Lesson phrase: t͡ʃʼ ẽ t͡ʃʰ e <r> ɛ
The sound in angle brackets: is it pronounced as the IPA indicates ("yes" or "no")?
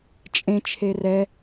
yes